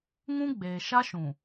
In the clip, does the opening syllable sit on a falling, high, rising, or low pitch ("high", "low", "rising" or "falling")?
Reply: high